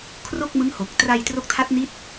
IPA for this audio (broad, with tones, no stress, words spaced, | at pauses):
kʰro˥˩k̚mɯ˦˥ŋho˨˩k̚ tra˧j tro˦˥k̚ tʰa˦˥t̚ni˦˥t̚